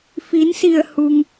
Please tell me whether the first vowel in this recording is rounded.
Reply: no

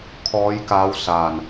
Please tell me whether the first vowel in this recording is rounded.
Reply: yes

